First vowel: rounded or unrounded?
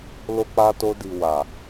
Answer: rounded